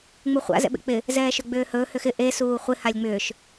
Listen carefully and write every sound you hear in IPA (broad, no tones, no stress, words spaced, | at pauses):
ŋ͡muχʷa̰ zɛ̰ɓḛk͡pɪ | zɛːʃɵɡ͡bʏːhɵː hʏxɪ ʔe suːχʷɪ halʲŋ͡mʏːʃ